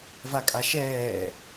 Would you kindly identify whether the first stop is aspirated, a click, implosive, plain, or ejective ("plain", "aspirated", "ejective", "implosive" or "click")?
ejective